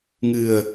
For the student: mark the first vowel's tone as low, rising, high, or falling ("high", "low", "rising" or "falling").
low